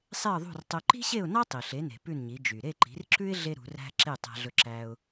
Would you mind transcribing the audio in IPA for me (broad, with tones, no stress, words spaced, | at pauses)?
sˤe˥˩ə̯ðˤṳ˥˩rtˤœ˧ ǃi̤˥ɕe˥˩ʊ̯nɑ˥ tˤi˩ɬe˩˥ne̤˩ pʉ˥˩nɲi˩˥ d͡ʒy˩ ɾe˥˩ ǃi̤˩˥rǁʉ˥ɪ̯ ɮe˥ɾṳ˩˥ræ̤˥ ǁe˥˩tˤæ̤˧ɮɵ˧ǁæ˧ʊ̯